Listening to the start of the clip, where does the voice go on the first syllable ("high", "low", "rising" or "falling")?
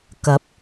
rising